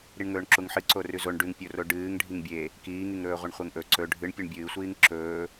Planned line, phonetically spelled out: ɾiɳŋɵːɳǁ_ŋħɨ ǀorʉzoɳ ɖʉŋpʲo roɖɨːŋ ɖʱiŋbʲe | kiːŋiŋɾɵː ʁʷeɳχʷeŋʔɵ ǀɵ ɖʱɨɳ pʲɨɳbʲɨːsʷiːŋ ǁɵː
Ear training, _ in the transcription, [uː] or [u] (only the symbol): u